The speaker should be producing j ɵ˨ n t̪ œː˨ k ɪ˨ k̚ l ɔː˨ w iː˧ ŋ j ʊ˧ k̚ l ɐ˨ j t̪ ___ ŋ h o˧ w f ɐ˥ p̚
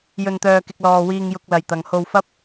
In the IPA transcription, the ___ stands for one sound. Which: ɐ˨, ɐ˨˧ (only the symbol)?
ɐ˨